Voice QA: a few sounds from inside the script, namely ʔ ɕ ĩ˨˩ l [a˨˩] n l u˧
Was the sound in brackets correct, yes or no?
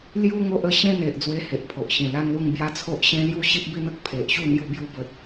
no